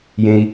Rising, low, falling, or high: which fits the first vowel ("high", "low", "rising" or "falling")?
high